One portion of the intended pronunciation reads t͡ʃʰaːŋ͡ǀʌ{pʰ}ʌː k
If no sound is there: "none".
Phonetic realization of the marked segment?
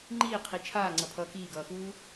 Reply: pʰ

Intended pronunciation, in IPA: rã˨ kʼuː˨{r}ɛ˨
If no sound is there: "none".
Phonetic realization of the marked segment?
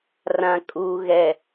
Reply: ɣ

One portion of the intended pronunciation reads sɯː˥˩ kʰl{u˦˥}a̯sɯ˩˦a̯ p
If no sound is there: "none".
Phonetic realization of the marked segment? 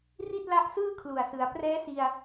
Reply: u˨˩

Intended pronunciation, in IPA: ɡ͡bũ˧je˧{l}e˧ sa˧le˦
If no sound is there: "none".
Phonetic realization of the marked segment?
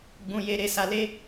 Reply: ɾ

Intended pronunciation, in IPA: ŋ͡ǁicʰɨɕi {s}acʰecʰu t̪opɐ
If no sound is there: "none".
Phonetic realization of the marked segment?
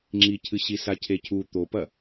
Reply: s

